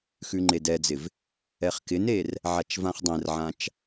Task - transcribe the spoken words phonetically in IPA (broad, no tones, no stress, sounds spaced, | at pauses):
x ʉ ŋ͡ǃ e d ɛ d͡z ɪ v | ɛ χ k ɪ n e r | ʕ a t͡ʃ v ã χ dˤ ɛ̃ r ʕ ã t͡ʃ